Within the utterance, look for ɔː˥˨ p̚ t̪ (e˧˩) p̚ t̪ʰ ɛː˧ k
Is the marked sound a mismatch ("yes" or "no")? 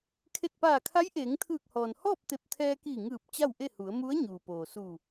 no